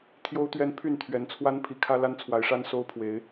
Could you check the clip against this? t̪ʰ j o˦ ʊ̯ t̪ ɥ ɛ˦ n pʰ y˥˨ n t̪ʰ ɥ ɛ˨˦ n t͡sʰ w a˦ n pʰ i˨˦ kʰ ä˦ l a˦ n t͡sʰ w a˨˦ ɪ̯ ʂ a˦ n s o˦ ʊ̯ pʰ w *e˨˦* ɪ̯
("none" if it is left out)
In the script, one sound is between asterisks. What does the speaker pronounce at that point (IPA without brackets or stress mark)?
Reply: e˨˦